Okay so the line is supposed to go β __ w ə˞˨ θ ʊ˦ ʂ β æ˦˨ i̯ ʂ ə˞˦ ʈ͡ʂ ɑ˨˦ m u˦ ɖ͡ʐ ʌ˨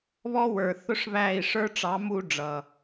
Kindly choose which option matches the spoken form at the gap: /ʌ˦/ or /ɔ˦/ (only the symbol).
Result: ɔ˦